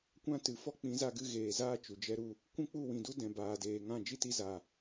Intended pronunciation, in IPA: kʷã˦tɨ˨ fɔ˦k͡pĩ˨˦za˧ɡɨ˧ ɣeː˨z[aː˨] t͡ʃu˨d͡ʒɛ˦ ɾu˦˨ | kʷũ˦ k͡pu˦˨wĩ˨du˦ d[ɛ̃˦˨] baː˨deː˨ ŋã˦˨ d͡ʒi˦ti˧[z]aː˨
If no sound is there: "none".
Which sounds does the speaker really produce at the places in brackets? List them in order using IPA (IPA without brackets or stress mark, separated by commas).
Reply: aː˦, ɛ̃˨, z